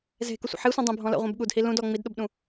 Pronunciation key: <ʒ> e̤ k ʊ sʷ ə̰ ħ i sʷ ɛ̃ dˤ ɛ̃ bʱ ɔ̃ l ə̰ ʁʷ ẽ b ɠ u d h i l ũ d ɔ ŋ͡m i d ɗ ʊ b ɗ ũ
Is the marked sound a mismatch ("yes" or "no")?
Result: yes